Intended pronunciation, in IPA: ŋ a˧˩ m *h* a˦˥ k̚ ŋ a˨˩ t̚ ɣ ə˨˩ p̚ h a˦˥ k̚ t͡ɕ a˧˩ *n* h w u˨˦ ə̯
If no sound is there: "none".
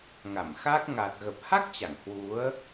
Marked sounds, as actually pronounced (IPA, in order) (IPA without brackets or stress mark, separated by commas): x, ŋ